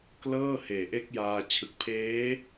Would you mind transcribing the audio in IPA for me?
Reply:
k l ɤː˥˩ h eː˨˩ ʔ e˦˥ k̚ j aː˧ t͡ɕʰ ɯ˨˩ k̚ pʰ eː˦˥

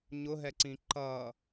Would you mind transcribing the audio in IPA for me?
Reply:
ɲ ʊ ɦ ɛ ǀ ĩ ǃ ʌ

